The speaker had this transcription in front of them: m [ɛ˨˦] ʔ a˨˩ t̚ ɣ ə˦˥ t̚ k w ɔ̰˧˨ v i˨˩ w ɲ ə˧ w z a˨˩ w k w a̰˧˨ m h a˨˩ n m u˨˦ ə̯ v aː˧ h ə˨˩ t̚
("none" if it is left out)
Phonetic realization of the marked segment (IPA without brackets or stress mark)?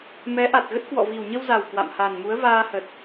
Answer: ɛ˨˦